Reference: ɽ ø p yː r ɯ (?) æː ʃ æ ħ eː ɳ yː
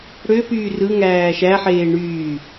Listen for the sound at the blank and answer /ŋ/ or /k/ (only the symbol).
ŋ